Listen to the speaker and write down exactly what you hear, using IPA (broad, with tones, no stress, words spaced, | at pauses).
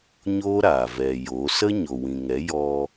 ɲoː˦ɾaː˨ vɛ˨ jo˨˦ sə˦ɲo˨wĩ˨ŋɛ˨˦ jɔ˧